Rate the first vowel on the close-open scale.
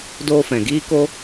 mid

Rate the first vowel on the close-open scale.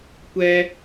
mid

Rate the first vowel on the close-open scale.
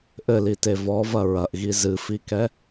mid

